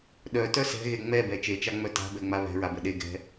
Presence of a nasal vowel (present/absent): absent